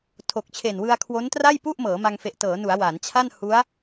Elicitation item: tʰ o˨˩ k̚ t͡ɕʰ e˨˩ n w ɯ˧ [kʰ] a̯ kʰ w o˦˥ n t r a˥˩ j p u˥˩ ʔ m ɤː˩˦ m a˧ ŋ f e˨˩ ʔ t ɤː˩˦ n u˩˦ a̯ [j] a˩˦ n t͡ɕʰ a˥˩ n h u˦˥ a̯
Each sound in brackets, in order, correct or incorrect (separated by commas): incorrect, incorrect